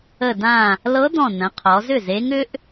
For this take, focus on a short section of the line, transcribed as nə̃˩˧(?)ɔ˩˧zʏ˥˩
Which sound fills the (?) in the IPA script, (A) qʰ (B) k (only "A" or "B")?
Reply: A